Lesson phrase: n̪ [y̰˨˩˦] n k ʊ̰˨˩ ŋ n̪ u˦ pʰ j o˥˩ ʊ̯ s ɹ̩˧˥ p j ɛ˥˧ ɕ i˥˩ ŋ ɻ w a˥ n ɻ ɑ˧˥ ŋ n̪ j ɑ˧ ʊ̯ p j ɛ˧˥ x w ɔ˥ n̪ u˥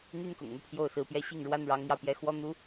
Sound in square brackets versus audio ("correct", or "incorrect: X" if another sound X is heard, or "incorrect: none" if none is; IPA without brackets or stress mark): incorrect: y˥